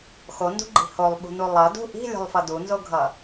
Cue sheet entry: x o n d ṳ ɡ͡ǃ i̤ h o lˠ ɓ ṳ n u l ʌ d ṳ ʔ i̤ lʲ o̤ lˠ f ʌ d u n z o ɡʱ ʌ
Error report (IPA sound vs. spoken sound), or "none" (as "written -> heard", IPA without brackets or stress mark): l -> lˠ